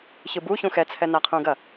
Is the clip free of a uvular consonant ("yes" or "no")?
no